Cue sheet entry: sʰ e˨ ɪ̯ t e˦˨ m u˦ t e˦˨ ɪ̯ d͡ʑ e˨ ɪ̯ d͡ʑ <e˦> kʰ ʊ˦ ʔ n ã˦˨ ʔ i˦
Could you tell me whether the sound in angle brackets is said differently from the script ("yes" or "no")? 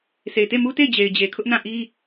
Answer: yes